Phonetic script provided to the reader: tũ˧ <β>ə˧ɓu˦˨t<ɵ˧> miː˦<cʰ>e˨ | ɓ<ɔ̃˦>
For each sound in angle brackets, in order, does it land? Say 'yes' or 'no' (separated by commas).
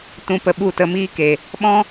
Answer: no, no, no, yes